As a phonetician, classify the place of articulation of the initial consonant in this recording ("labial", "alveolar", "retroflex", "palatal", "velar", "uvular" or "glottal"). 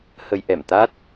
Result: glottal